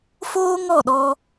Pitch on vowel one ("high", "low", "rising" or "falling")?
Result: high